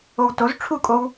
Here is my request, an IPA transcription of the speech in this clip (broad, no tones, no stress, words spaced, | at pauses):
owtoz ʈ͡ʂʰukʼow